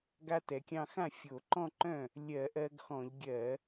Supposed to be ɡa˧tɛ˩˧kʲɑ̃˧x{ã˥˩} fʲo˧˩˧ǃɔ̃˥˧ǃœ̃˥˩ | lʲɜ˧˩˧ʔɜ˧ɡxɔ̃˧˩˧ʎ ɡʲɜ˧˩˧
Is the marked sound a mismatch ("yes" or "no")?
no